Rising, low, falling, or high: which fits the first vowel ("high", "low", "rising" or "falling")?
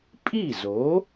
falling